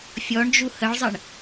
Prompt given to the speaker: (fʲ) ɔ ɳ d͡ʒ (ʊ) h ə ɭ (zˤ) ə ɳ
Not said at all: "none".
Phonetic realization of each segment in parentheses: fʲ, u, zˤ

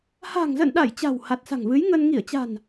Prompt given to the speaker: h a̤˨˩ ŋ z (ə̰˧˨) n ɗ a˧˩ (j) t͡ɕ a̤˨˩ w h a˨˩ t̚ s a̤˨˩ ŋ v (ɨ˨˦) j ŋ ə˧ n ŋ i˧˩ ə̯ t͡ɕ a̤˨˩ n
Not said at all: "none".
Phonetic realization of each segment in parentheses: ə̰˧˨, j, ɨ˨˦

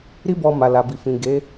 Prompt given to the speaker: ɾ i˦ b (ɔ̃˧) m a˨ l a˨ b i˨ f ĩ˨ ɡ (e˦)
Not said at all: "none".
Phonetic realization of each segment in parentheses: ɔ˧, e˨˦

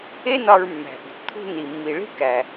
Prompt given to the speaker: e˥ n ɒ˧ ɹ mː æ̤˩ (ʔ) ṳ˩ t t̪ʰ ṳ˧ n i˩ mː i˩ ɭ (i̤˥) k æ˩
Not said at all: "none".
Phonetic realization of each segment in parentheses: ʔ, i̤˥

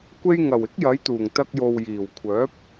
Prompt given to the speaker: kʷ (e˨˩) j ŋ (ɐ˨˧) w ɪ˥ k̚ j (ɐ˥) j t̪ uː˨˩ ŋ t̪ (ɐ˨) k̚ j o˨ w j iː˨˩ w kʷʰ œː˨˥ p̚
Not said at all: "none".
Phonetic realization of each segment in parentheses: e˧, ɐ˨˩, ɐ˨˥, ɐ˧

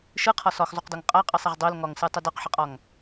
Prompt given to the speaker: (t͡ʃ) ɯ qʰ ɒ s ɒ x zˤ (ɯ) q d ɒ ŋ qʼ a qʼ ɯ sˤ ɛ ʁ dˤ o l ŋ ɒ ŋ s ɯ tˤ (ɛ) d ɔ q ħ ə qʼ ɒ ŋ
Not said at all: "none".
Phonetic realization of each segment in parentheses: ʃ, u, ə

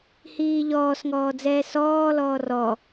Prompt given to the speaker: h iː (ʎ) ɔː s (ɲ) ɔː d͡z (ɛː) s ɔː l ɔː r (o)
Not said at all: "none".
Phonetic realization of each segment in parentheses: ʎ, ŋ, ɛː, ɔ

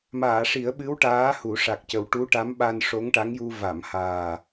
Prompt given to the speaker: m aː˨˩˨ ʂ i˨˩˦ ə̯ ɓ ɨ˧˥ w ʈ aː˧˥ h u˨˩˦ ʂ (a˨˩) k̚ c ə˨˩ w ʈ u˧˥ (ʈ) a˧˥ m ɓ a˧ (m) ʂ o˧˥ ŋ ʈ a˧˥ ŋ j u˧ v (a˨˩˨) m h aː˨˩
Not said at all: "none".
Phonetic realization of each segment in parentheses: a˨˩, ʈ, n, a˨˩˨

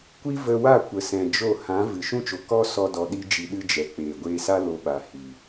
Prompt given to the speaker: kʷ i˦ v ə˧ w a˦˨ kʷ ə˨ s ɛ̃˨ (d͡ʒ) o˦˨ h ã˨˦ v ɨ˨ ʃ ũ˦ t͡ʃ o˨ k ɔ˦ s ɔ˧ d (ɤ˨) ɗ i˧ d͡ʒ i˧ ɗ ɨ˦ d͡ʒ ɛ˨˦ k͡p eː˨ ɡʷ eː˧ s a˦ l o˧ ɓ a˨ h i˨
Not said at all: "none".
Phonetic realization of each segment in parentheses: d͡ʒ, ɔ˨

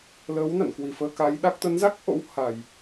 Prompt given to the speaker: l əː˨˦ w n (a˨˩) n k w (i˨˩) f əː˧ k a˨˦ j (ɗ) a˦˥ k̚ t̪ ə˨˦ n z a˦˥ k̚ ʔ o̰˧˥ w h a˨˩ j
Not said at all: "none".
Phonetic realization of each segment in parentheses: a̰˧˨, i˨˩, ɗ

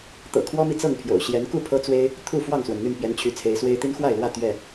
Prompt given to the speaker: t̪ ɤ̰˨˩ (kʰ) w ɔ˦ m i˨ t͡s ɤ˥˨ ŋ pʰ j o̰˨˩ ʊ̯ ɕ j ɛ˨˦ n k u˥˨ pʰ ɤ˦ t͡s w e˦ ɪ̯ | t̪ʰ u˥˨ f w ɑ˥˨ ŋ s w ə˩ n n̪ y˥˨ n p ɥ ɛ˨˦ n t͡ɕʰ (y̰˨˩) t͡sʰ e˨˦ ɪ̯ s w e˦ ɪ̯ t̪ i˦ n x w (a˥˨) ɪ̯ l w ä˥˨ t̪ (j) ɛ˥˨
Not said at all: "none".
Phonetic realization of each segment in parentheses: kʰ, y˨˦, a˥˨, ɥ

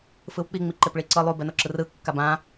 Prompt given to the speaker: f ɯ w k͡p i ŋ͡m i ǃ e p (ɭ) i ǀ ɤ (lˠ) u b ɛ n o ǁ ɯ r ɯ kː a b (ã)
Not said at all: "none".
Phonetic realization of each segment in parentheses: ɭ, lˠ, ã

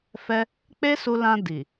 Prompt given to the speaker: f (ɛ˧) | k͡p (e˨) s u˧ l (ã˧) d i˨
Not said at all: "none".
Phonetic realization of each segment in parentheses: ɛ˧, e˦, ã˧

